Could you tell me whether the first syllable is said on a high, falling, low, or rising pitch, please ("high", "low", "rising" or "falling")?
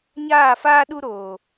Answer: falling